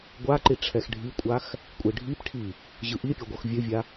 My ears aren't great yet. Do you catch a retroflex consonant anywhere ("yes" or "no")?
yes